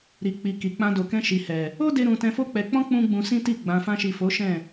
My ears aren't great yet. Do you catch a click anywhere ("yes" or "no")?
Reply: no